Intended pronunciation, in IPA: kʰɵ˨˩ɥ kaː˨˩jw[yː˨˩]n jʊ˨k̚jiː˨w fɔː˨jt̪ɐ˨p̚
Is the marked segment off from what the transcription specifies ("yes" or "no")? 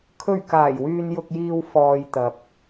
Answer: yes